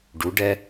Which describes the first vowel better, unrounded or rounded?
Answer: rounded